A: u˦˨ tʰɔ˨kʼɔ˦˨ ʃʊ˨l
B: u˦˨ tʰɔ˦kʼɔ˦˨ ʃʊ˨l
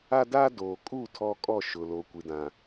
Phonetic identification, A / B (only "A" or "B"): B